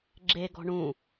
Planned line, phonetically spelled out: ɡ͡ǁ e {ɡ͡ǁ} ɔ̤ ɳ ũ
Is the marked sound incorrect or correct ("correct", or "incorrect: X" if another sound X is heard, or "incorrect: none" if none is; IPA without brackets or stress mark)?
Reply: incorrect: ɡ